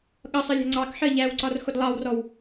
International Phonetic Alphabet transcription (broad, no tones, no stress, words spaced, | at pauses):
ɠʌsˤɜlʲæ̤ ŋ͡ǀɑkħɜ ʎæwǀɒr xʊdlˠɑwrɔw